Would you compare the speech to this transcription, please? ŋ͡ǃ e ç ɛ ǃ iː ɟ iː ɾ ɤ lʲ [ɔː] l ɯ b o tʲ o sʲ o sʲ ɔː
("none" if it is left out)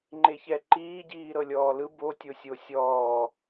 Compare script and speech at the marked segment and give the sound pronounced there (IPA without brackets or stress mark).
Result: ɔː